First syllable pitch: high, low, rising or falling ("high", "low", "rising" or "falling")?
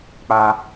high